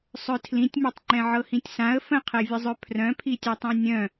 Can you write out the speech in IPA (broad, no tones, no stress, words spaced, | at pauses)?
sˤœtʰlĩtʲmœtˤŋ͡ǃɛ̃ ʕɤhĩtʲsãə̯ fə̃qʰɛvʲəzˤœ pʰrœ̃pʰitʲɛtˤɛ̃ nʲœ̃